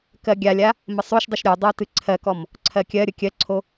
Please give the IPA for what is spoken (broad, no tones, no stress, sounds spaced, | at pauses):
k ɜ ɡʲ a lʲ a | m ə sˤ o ʃ dˤ ɨ ʃ ɾʲ o dˤ o t ɨ ǀʰ ɜ k ɔ m | ǀʰ ɜ kʲ ɜ ɾʲ ə kʲ ɜ ǀʰ o